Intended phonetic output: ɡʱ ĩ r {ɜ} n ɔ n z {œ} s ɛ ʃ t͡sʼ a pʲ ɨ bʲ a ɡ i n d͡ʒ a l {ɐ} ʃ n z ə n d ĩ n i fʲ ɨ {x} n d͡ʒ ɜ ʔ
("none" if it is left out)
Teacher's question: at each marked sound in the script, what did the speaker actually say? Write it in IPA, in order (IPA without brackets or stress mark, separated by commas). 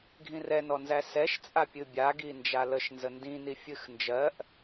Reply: ɛ, æ, ə, x